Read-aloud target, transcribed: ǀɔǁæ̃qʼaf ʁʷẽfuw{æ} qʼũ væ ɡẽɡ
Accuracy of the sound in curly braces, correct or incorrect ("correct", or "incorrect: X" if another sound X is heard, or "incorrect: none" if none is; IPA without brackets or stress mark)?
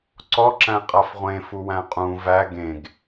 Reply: incorrect: æ̃